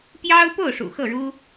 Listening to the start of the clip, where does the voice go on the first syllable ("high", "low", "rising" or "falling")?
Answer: high